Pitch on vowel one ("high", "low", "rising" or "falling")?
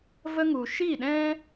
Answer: high